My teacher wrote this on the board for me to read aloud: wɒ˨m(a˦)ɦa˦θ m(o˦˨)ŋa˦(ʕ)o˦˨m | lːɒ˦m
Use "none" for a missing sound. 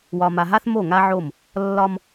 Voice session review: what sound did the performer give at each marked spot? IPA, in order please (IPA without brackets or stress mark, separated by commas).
a˨, o˦˨, ʕ